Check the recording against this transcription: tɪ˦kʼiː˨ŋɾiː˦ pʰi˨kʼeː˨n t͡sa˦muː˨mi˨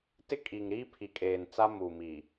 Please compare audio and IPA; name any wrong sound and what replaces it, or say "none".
none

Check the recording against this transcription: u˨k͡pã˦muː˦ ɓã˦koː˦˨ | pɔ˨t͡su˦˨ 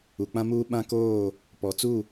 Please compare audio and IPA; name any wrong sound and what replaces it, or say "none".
none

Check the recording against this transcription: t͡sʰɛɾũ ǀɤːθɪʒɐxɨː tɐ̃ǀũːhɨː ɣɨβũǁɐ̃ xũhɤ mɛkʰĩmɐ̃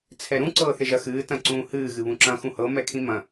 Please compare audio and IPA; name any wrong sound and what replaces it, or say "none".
none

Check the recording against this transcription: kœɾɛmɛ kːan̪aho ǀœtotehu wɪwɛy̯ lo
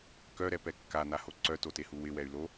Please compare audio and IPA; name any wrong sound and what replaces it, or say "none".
m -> p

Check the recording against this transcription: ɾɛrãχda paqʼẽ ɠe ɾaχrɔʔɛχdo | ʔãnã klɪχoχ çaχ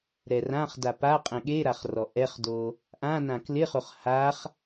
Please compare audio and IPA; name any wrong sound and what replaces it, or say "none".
ç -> h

